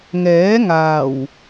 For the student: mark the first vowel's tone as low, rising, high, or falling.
rising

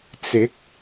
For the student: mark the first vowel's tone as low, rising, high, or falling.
rising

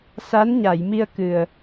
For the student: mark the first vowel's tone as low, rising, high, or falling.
rising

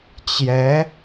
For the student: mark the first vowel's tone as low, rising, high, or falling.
rising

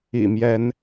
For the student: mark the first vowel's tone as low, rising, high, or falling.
low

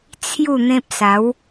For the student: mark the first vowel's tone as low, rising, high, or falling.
falling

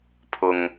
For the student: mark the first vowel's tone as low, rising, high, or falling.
low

